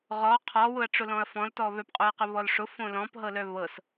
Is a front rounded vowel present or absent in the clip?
present